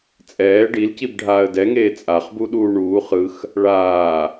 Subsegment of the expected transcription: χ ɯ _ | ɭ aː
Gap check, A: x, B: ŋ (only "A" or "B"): A